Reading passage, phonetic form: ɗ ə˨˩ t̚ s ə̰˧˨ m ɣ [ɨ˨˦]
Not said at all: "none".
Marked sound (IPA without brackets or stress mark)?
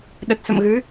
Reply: ɨ˨˦